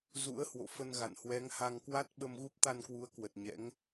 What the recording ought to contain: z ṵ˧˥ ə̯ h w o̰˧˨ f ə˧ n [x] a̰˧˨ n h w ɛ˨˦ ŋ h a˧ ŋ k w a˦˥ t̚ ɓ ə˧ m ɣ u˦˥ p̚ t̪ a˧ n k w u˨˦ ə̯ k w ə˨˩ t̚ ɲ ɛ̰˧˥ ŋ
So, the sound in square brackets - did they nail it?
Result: no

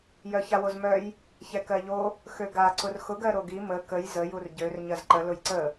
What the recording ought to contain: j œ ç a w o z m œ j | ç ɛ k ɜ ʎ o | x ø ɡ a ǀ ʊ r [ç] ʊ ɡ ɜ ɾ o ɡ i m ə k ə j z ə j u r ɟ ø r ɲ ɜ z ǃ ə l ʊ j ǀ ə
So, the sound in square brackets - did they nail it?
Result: no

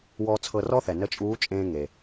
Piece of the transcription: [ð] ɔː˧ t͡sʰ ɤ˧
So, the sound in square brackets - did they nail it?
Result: no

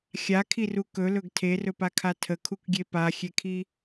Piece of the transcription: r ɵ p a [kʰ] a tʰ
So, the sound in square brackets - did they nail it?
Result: yes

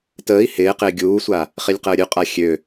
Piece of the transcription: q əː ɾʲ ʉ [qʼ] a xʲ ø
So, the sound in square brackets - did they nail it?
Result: yes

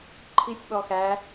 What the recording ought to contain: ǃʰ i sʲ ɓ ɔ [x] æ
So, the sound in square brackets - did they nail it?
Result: yes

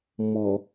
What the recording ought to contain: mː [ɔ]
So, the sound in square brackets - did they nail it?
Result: yes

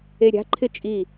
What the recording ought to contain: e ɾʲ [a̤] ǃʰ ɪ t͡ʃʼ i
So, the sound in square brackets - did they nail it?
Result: yes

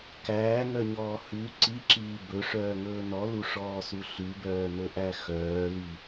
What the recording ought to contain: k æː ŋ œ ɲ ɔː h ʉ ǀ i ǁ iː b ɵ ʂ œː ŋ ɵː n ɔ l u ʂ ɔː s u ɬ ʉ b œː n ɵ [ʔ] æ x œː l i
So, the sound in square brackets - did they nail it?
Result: yes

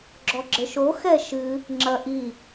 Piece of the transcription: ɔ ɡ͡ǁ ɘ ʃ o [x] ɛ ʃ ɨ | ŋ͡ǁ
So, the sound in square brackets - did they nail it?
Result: yes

